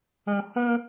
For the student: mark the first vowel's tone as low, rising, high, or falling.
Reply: low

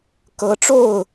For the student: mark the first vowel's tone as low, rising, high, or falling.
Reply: rising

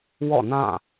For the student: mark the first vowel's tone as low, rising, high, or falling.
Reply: falling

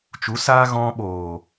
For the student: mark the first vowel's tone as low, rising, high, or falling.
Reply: rising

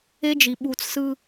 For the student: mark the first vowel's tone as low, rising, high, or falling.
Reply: high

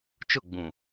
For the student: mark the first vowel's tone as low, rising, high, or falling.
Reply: falling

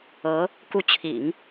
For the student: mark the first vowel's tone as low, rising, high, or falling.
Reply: rising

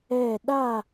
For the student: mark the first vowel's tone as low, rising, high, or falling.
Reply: falling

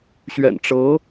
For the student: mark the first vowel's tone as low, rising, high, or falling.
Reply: low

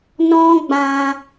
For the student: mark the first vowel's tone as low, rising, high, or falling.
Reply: high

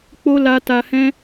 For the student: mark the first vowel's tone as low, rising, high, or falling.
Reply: high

